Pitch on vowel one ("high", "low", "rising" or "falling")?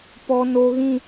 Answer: high